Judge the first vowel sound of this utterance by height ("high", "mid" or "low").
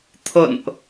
mid